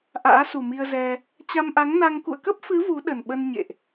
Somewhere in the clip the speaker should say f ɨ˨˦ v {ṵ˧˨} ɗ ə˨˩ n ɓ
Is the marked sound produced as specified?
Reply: no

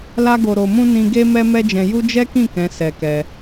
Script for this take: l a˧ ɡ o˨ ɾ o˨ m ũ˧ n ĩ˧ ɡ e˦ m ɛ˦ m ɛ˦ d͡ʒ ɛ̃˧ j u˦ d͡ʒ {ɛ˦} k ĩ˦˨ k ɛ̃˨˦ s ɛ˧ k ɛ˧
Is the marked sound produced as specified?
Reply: yes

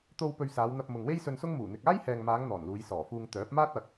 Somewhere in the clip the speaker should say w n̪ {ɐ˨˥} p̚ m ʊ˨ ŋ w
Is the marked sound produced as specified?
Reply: no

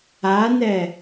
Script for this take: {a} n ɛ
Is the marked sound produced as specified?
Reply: yes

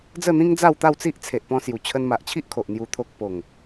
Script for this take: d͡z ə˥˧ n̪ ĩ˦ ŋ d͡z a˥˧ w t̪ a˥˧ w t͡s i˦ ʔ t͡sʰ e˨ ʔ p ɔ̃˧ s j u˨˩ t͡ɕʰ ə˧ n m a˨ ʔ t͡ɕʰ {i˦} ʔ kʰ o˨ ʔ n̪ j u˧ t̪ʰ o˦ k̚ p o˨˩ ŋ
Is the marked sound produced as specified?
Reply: yes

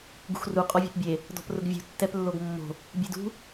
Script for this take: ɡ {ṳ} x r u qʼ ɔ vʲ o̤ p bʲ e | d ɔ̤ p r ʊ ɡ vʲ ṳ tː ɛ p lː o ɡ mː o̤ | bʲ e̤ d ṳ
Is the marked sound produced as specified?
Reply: yes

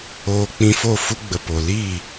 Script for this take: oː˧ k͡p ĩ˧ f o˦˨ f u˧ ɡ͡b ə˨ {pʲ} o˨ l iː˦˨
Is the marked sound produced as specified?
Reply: no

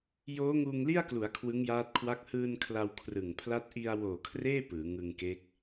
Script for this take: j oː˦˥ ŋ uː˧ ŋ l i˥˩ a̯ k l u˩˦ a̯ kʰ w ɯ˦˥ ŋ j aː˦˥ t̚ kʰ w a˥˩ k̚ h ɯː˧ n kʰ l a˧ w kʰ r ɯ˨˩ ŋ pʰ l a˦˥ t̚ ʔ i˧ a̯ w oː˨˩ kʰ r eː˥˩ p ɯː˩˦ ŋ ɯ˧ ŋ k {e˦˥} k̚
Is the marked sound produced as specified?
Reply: yes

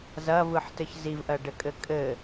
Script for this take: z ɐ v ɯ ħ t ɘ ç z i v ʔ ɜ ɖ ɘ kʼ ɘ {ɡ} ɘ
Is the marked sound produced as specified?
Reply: no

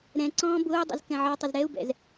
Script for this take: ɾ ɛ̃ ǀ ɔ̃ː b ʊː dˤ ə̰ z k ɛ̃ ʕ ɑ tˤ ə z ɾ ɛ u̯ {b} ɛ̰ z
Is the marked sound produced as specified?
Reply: yes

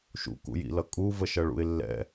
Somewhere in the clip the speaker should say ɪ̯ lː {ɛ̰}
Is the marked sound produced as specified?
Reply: yes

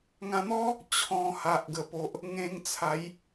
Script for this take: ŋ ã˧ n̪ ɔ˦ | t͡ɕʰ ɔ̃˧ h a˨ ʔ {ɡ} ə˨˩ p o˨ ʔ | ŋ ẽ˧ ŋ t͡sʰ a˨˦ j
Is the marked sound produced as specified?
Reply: yes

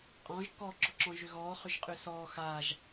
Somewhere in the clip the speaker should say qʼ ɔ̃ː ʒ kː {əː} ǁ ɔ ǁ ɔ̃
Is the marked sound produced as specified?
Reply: no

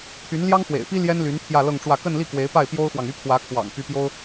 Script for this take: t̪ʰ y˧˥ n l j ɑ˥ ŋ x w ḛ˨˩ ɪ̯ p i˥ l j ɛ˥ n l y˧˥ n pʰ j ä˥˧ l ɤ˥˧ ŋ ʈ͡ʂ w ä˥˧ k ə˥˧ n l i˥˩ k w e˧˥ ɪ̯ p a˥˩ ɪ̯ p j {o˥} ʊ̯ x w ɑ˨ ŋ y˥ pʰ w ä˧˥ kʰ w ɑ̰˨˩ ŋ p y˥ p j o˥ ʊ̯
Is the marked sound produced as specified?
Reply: yes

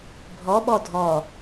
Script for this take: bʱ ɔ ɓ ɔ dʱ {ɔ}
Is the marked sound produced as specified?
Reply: yes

